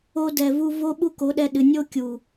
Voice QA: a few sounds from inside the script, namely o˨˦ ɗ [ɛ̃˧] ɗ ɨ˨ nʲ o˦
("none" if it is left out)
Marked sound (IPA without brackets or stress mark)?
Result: ɛ˧